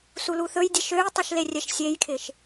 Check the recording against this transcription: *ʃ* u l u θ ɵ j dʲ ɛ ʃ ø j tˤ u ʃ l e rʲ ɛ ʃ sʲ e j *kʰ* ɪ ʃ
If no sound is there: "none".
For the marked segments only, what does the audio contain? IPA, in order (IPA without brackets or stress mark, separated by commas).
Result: s, kʰ